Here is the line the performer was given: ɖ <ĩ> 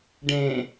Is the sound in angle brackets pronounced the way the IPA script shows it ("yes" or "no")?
no